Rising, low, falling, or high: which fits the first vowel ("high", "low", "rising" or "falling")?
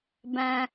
low